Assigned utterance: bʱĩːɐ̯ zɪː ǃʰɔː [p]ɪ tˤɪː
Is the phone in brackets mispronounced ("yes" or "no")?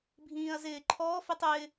yes